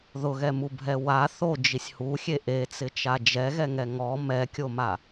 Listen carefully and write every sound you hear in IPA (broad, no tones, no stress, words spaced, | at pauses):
ðʊɣɛmubʱɛ wa θod͡ʒisʲ huxʲe ʔet͡sɪt͡ʃa d͡ʒɛɣɛŋɛ ŋɔ mɛkʲoma